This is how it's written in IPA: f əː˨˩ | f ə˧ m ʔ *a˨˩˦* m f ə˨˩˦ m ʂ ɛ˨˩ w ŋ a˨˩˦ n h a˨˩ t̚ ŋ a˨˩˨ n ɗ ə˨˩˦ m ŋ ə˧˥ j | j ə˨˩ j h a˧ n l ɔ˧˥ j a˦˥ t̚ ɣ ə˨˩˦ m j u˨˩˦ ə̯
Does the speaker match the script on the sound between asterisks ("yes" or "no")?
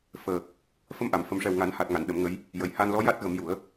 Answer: no